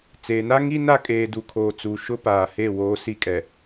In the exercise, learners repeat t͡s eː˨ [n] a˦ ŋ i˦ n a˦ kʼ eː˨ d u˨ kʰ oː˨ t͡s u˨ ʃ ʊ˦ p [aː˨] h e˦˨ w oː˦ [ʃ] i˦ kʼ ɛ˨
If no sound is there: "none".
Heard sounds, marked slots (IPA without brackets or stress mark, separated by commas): n, aː˨, s